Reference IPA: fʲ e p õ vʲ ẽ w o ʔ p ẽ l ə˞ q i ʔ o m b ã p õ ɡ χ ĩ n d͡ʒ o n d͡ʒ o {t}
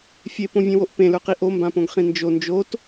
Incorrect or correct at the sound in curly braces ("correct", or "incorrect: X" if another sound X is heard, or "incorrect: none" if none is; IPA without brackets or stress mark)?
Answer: correct